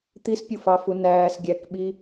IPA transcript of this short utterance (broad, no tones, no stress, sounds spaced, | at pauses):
t̪ i s pʲ u f ɑ f u n æː s ɡʲ æ k ɓ i